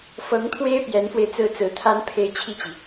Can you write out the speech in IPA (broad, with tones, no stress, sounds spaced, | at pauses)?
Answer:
f ɤ˧˥ ŋ t̪ʰ w e˥ ɪ̯ p j ɛ˧˥ n f w e˧ ɪ̯ t͡s ɹ̩˥ t͡s ɹ̩˧˥ t̪ʰ a˥ n pʰ e˥˧ ɪ̯ t͡ɕʰ i˥˩ t͡ɕ i˩